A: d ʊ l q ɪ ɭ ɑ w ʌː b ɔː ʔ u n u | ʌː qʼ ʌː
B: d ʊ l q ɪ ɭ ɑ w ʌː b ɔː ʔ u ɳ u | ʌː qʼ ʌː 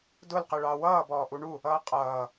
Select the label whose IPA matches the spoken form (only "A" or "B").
B